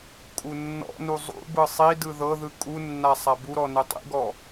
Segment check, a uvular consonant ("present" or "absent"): absent